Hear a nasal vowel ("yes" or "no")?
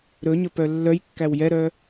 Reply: no